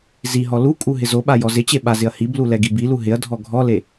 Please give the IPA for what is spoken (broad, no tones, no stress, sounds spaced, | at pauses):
z i ɦ ɔ l u kʼ u ɦ ɪ z o ɓ a j ɔ z ɪ t͡ɕ e ɓ a z ɪ ɐ̯ h i b l u l ɛ ɡ i b i l u ɦ ɪ ɐ̯ dʱ ɔ ɡʱ ɔ l e